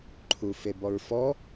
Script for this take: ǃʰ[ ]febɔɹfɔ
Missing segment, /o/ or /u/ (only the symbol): u